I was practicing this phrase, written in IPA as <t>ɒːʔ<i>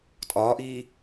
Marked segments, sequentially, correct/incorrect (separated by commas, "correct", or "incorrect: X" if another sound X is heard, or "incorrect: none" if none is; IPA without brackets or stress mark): incorrect: tʼ, incorrect: iː